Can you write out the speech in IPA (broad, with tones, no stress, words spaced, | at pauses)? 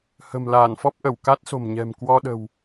hə̤˨˩mlaː˧˩nfɔ˦˥p̚ ʔə˧˩wka˦˥t̚ so̤˨˩mɲɛ̤˨˩mkwɔ˧ɗə̤˨˩w